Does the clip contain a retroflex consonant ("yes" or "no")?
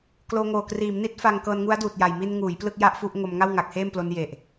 no